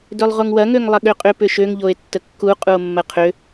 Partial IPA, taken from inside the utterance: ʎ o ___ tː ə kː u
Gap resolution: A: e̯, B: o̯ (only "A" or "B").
A